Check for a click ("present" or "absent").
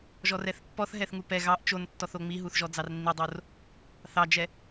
absent